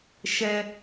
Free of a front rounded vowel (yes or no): yes